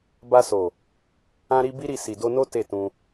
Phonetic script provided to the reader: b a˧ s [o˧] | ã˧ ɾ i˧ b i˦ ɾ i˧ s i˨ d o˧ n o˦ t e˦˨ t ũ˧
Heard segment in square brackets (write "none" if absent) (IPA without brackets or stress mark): o˨